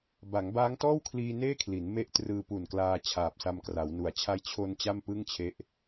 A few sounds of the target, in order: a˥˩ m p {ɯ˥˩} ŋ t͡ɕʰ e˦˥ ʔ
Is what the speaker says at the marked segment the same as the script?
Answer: yes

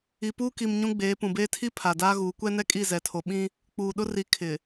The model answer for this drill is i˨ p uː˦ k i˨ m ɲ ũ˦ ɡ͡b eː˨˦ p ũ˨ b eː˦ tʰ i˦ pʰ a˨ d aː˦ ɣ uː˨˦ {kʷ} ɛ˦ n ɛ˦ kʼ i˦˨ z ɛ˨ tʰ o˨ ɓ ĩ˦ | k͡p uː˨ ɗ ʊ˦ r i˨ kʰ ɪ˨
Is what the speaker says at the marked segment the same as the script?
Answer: yes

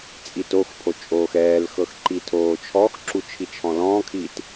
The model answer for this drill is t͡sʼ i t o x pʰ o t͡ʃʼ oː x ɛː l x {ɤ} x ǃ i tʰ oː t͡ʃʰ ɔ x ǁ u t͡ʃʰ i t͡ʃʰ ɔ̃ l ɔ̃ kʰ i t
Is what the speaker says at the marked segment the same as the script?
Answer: yes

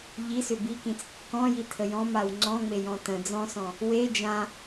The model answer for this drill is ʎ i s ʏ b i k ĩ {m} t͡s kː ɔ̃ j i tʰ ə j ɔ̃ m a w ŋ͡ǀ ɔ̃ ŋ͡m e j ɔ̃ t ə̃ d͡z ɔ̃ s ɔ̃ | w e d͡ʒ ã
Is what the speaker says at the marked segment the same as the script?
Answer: no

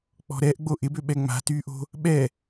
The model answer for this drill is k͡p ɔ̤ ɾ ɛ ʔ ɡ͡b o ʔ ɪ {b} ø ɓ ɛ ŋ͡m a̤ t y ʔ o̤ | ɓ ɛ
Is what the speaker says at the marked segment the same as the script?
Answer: yes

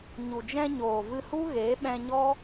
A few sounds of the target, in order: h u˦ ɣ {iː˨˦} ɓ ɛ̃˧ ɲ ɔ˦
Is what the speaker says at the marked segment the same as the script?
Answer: no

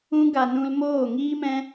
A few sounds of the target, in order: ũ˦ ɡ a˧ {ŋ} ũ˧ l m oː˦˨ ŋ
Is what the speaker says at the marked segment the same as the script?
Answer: no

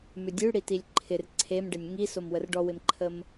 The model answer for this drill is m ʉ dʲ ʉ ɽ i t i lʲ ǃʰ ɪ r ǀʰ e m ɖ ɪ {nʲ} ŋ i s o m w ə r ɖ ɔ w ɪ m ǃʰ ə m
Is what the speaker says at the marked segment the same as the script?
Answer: yes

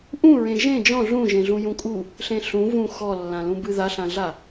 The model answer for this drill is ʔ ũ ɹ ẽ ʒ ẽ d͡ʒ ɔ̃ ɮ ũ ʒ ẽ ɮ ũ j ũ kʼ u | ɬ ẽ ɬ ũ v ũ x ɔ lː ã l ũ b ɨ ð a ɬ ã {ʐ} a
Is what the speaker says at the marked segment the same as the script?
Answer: no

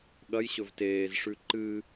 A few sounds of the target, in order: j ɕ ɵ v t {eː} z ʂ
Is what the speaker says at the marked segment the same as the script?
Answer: yes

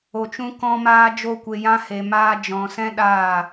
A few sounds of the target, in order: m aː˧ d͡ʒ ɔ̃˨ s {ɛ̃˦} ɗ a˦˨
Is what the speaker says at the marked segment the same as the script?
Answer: yes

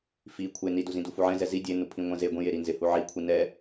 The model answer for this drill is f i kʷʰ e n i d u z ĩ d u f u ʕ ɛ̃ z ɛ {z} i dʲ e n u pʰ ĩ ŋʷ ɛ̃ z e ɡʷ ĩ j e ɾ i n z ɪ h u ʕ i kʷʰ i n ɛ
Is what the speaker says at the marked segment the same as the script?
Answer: yes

